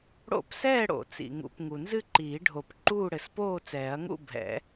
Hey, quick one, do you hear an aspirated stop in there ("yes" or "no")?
no